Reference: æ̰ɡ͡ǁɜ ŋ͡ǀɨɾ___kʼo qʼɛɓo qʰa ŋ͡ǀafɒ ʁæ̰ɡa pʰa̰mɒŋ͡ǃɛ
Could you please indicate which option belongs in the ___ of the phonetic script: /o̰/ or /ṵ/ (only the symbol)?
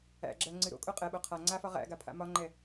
o̰